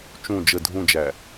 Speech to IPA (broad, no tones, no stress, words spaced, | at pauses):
t͡ʃũ d͡ʒə dʱũd͡ʒæ